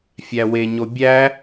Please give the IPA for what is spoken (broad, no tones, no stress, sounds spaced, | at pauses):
fʲ æ w e ɲ o bʲ æ